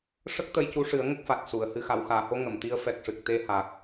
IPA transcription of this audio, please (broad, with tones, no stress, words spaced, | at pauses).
ʂə˦˥k̚t̪ə˧jcu˧˥ʂɨ˨˩˦ə̯ ŋə˦˥k̚fa˨˩t̚su˨˩˨ə̯ hɨ˨˩xa˨˩˨wxaː˨˩˨ho˧ ŋə˨˩˨mt̪i˧˥ə̯ fɛ˨˩k̚ʂɨ˨˩k̚ t̪e˧ha˨˩k̚